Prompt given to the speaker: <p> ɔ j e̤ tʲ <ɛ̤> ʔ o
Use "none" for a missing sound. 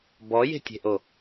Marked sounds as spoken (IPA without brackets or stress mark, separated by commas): b, e̤